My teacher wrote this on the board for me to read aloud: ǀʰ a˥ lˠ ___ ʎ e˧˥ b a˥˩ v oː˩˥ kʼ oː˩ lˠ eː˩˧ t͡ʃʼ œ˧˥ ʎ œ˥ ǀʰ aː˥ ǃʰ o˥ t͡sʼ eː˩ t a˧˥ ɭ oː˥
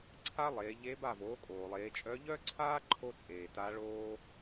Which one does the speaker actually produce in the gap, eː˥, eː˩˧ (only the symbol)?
eː˩˧